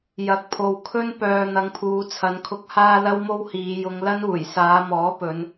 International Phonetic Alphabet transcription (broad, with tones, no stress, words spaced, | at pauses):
jɐ˨˥k̚pʰo˨w kʰɵ˥n pœː˨ n̪ɐ˨˧ŋpʰuː˨˧t͡sʰɐ˨˧nkʰʊ˧k̚ haː˥lɐ˥wmo˥w hiː˨˧ jʊ˨˧ŋlɐ˥n uː˨˩jsaː˨˧mɔː˨˥pɵ˨˧n